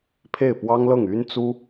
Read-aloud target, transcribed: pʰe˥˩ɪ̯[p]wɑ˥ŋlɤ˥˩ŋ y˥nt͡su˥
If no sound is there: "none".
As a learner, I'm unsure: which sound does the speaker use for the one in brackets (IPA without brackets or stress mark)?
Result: p